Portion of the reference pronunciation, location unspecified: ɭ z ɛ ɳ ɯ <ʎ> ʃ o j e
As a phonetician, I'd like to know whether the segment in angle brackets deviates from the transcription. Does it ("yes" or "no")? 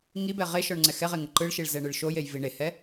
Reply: yes